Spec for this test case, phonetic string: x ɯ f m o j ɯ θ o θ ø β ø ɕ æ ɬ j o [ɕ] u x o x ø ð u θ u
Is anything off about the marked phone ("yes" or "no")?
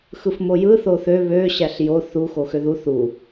yes